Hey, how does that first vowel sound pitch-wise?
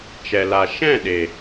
low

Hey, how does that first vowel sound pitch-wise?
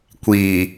low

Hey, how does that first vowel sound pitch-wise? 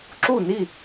falling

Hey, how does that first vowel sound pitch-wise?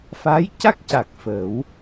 rising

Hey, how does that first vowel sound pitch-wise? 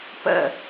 falling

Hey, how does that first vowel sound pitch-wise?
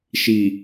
low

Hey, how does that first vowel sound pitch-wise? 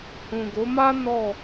low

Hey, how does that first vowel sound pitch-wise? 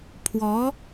rising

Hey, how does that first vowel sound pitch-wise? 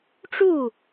falling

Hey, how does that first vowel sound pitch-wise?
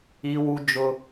high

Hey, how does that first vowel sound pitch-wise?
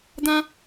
high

